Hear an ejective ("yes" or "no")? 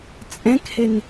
yes